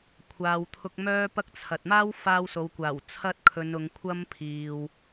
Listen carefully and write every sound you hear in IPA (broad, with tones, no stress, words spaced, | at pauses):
kʷʰaː˨wt̪ʰʊ˧k̚mœː˥pɐ˥k̚ t͡sʰɐ˨t̚ maː˥wfaː˧w so˨˧wkʷaː˨˩w t͡sʰɐ˧t̚ kʰɵ˨˧n ʊ˨˧ŋkʷʰɐ˥m pʰiː˨w